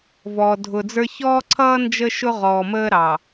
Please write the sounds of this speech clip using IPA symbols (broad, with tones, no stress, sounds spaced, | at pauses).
v ɔ˨ dʱ ʊ˨ d͡z ə˞˦ ç ɔː˦ ǀʰ ʌː˦ n d͡ʒ ə˦ ʃ ʊ˦ ʁ ɔː˨ m əː˦ ɾ ɑ˨